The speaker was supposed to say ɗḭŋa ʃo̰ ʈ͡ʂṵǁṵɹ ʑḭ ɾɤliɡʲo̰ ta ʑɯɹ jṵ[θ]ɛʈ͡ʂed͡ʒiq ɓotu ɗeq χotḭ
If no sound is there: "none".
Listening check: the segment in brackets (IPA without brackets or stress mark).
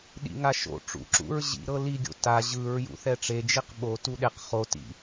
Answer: θ